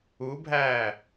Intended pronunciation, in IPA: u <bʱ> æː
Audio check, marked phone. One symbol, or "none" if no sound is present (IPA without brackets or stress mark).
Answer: bʱ